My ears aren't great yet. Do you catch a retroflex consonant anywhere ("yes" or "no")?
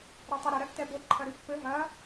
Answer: no